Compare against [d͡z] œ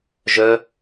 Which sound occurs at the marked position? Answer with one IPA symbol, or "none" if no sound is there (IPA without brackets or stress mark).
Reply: ʒ